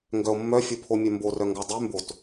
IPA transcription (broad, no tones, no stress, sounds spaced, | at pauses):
ŋ ɡ œ o̯ mː œ fʲ o pʰ o mʲ œ m b o r œ ŋ ɡ ɔ dˤ y m b o t